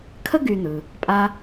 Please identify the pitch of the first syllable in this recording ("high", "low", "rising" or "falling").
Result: high